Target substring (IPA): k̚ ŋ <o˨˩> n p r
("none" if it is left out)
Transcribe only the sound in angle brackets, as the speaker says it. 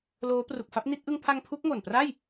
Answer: o˨˩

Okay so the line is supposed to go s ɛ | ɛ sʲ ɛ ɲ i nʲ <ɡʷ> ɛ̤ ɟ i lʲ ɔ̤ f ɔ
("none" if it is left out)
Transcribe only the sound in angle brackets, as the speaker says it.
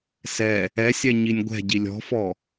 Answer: ɡʷ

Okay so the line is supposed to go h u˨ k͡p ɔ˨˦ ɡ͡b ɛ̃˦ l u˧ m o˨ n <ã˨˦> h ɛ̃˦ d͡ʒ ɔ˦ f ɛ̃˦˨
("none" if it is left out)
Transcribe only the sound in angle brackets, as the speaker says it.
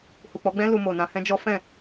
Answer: ã˧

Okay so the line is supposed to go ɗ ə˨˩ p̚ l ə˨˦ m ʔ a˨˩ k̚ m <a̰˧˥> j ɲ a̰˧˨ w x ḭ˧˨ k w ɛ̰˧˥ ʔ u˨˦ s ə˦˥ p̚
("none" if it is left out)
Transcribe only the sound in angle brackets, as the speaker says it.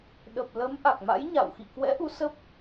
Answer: a̰˧˥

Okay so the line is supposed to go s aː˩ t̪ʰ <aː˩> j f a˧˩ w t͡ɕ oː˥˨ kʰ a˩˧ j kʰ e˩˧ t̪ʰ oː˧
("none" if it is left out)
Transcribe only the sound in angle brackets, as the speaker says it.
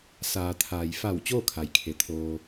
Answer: aː˩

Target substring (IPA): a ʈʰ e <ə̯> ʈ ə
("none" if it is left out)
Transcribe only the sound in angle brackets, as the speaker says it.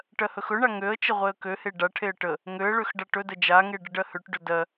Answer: ə̯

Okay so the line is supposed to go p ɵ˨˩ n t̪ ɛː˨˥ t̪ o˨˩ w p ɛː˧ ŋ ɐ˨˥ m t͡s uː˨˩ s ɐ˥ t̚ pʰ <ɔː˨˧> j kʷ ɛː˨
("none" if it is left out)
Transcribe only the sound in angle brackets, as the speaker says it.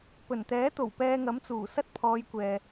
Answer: ɔː˨˧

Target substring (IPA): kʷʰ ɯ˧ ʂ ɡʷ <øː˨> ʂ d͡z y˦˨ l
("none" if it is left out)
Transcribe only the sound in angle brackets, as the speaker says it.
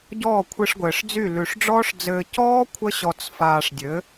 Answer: ɘː˨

